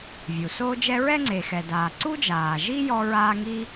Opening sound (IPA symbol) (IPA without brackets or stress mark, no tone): vʲ